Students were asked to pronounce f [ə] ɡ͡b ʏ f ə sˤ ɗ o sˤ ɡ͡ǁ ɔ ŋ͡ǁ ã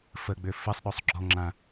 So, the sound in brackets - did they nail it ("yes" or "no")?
yes